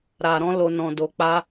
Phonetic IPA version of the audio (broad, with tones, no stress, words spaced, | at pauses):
ɾa˨ɾɔ̃˧ lo˨nɔ̃˨do˨k͡pa˧